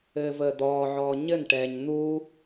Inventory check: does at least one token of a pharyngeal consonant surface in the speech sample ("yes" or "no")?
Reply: yes